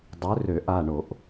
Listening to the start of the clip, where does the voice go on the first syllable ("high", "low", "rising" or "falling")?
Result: rising